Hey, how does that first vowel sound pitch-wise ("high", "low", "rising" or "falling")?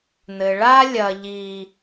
low